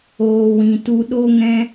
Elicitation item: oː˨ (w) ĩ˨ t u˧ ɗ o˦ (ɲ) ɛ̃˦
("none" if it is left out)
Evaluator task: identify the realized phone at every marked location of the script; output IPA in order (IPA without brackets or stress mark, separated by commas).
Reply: w, ŋ